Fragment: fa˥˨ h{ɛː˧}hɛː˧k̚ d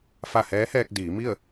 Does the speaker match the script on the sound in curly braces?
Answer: no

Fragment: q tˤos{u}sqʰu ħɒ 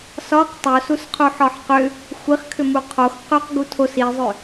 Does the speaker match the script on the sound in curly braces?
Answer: yes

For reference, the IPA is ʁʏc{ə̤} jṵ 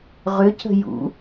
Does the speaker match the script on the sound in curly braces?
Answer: yes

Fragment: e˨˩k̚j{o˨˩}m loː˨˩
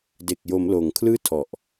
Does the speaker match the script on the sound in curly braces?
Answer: no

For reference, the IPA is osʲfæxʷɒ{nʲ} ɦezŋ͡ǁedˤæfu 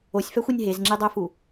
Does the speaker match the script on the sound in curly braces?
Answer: yes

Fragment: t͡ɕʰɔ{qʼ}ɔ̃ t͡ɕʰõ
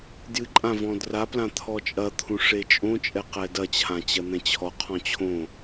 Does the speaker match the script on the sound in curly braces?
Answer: no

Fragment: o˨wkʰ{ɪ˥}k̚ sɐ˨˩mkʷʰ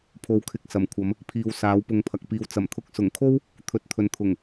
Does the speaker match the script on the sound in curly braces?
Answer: no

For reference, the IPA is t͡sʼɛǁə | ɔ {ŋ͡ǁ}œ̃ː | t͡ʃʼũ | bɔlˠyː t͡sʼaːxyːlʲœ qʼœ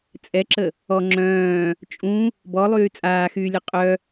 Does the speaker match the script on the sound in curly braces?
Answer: yes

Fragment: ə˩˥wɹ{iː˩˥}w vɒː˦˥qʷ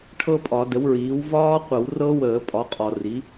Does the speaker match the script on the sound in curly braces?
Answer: yes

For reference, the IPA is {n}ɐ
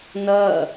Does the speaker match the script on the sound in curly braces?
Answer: yes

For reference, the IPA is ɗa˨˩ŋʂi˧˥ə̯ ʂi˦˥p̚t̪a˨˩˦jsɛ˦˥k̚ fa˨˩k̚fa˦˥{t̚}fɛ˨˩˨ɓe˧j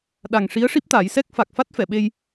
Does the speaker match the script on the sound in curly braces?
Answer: yes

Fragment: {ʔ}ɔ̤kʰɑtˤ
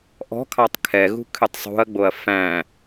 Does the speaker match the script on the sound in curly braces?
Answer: yes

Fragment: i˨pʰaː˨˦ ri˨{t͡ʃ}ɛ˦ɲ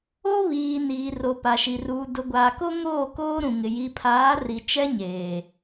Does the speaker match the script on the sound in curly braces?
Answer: yes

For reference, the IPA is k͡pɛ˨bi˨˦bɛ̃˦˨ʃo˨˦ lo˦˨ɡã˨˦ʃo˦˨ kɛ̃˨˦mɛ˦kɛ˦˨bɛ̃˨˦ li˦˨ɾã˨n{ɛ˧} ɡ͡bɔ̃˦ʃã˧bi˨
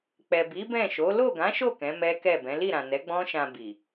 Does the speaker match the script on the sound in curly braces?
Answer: no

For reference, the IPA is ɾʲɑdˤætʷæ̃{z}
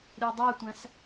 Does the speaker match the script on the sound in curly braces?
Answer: no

